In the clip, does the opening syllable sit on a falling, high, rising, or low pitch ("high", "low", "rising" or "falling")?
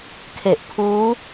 low